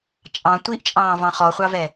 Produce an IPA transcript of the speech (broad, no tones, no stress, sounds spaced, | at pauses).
t͡ʃʼ ɑ̃ tʷ i ʔ t͡ʃʼ ɑ̃ː v ɑ̃ χ ɔ χʷ ɑ v ɛ